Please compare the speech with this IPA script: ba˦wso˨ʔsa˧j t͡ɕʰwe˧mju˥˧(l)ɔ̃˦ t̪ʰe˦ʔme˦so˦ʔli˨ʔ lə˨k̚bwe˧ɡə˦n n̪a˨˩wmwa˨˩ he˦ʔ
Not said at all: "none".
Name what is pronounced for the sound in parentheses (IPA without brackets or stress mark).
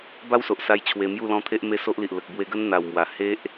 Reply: l